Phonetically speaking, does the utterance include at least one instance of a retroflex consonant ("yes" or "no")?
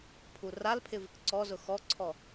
no